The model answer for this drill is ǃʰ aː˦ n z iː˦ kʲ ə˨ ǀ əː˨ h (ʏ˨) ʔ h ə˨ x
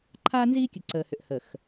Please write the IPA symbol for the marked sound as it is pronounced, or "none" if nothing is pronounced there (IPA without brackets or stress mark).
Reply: ʏ˨